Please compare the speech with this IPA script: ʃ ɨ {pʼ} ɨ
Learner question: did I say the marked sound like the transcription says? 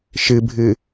no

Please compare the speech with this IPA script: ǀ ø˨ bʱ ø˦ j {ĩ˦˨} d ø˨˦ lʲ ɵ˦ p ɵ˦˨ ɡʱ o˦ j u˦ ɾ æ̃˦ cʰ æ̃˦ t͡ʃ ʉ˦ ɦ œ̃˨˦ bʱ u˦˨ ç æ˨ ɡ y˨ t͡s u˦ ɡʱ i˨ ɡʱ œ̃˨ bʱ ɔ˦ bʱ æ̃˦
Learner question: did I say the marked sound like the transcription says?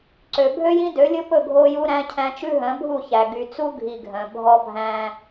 no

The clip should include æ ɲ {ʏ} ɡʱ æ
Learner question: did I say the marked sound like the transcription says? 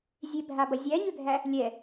yes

